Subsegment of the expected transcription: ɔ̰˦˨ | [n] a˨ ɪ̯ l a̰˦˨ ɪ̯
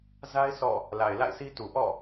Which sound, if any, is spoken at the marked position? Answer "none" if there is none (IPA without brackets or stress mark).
l